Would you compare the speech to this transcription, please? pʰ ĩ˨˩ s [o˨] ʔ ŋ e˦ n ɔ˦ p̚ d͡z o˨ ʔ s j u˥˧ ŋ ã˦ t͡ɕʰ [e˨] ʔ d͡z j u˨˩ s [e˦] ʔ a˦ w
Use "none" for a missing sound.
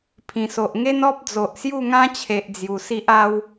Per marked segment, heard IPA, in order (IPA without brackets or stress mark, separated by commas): o˨, e˨, i˦